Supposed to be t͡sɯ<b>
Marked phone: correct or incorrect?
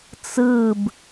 correct